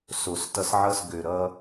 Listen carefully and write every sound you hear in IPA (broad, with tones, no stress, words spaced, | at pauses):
so˨s tʌ˧sʕʌ˦˨s ɡø˨ɾʌ˧